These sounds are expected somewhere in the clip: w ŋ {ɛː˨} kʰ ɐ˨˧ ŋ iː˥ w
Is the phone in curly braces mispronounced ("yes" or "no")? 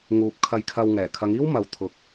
yes